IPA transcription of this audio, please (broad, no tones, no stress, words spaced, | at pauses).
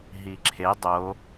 ɦiǁʰe dˤo